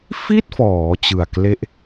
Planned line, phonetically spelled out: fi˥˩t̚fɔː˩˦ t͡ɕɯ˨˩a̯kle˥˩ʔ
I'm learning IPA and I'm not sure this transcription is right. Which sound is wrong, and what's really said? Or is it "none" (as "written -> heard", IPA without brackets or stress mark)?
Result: none